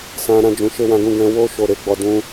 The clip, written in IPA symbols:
s ã˨ ɾ ã˧ d͡ʒ ũ˨ ʃ e˧ w ã˧ ɡ ũ˧ ɡ ɛ̃˧ w o˦ ʃ o˦˨ ɾ e˧ ɡ͡b ɔ˧ d ũ˦

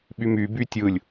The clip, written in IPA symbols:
ɓ y m y b y tʲ ɯ lʲ

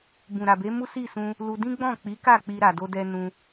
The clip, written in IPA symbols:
b ũ˨ ɾ a˨ b e˨˦ m u˦ s i˦˨ s ũ˧ | l u˧ d ĩ˦ ɡ͡b ɔ̃˦˨ k͡p i˨˦ k a˦˨ k͡p i˧ ɾ a˨ d o˧ d ɛ˧ n ũ˧

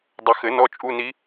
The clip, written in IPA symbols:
dˤ ɘ˨˩˦ x ɘ˨˩˦ n ɔ˧˥˧ t͡ʃʼ u˧˥˧ n i˧˥

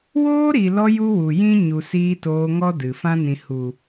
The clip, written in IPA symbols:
w oː˦ ɾ i˨ l ɔ˧ j u˦ w u˨ j ĩ˦ ɲ u˨ s iː˧ t oː˧ ŋ ɔ˦ d ɨ˨ f ã˦ n ĩ˨ h u˨

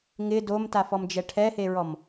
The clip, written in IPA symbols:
ŋ ɪ d o m t a f ɔ m d͡ʒ ɛ ʈʰ ɛ h e ɹ ɔ m

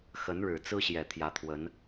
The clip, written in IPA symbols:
x ə˧˥ n ɻ ɻ̩˨˩ t͡s ɹ̩˥ ɕ j ɛ˨˩ t̪ʰ j ä˧˥ t̪ʰ w ə˧˥ n

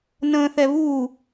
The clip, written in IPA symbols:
n ə̃ː θ ɛ β u

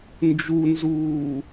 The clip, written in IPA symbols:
n d͡ʒ u n z uː

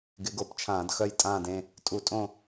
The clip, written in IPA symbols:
ɡ ɪ˨˥ ɡ o˨˥ p t͡ʃʰ ãː˧˩˧ d x œ˦˨ j tʼ ãː˦˨ d ẽ˦˨ | tʼ u˧˩˧ tʼ õ˦˨

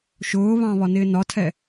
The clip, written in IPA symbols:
ʃ ʊː β ɑ̃ β ɒ n ɪː n ɒ tʰ ɛ

